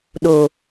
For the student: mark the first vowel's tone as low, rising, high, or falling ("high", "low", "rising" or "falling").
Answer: low